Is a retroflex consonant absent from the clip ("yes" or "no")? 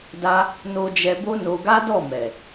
yes